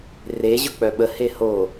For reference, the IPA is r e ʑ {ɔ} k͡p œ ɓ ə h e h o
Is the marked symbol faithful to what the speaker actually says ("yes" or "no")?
no